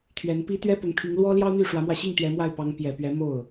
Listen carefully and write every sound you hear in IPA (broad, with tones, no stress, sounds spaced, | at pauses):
t̪ʰ ɥ ɛ˧˥ n p i˥ t̪ ɥ ɛ˥ p ʊ˧˥ ŋ t̪ʰ i˧˥ ŋ l w ɔ˥ l j ɑ˥ ʊ̯ n̪ y˥˩ ʂ w ä˧˥ m w ä˧ ɕ i˥˩ ŋ t̪ ɥ ɛ˧˥ m w a˥˩ ɪ̯ p ɑ˧˥ ŋ p j ɛ˨˩ p ɥ ɛ˧˥ m o˥˩ ʊ̯